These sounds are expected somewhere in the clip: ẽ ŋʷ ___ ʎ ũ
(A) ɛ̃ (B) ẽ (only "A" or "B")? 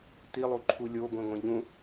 B